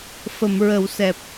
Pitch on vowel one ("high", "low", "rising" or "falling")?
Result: low